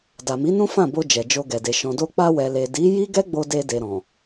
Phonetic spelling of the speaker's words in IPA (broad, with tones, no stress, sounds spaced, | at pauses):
d a˨ m i˨˦ n ũ˦ f ã˦˨ b o˧ d͡ʒ ɛ˨ d͡ʒ o˧ ɡ ɛ˨ d e˨ ʃ ɔ̃˨ d o˧ k͡p a˧ w ɛ˨ l e˨ d i˨˦ j i˦ ɡ ɛ˦ ɡ͡b o˧ d e˧ d e˨ ɾ ɔ̃˨